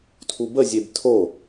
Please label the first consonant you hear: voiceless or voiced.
voiceless